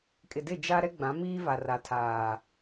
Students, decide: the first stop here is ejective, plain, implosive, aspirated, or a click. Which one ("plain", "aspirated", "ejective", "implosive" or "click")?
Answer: ejective